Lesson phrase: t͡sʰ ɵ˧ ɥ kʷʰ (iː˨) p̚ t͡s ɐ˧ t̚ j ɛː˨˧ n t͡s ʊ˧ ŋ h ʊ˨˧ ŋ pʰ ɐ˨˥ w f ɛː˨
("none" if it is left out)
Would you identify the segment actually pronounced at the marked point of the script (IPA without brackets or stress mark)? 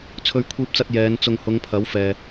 iː˧